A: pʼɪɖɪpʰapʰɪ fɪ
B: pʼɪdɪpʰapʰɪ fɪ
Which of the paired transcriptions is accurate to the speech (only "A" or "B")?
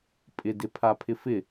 B